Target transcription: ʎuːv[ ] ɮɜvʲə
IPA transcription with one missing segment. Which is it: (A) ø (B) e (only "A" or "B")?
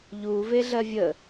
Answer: B